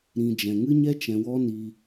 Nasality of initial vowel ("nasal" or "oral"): nasal